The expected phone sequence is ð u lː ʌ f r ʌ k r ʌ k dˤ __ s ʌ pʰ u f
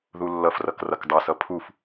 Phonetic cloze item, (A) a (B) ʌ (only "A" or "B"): B